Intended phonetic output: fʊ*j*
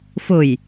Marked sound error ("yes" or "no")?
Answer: no